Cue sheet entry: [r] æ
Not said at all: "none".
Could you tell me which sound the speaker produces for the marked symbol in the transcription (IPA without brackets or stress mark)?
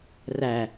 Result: r